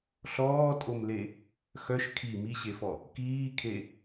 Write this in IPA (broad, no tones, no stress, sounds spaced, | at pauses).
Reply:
ɬ ɔː tʼ o m l e | x œ ʃ kʰ i m i ɕ e f ɔ | k iː kʰ e